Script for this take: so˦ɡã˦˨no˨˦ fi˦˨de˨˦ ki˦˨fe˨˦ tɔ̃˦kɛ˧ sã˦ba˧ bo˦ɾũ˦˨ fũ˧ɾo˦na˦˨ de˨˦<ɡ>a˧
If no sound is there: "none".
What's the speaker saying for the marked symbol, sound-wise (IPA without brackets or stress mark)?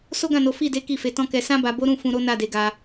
ɡ